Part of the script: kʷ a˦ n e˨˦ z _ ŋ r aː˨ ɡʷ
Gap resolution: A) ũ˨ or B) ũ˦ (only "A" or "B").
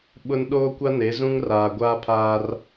B